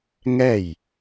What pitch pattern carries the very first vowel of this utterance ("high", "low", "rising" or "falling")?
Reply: falling